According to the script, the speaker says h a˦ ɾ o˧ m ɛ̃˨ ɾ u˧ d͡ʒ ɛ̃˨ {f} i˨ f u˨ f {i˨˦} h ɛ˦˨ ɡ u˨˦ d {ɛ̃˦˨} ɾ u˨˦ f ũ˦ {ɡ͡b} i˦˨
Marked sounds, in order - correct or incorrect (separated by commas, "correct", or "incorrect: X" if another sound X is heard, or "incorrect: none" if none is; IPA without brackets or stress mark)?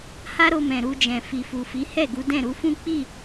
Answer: correct, correct, correct, incorrect: k͡p